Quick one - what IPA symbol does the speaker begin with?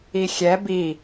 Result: i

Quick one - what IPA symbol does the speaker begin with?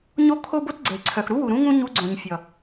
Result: ɲ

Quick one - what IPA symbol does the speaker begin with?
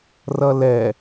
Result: r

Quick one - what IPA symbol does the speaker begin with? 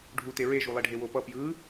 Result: ɖʱ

